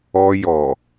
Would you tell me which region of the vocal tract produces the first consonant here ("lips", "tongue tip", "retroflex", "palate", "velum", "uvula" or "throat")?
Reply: palate